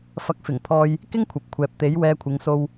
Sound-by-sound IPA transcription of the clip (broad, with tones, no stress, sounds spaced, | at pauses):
f ɐ˨ k̚ f ɪ˨˩ ŋ pʰ ɔː˨ j | k ɪ˥ ŋ kʷʰ ɐ˨ p̚ kʷʰ ɛː˨ p̚ t̪ e˨˥ j w ɛː˧ kʷʰ ɪ˨˧ ŋ s o˧ w